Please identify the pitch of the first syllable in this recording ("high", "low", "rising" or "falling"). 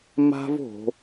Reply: high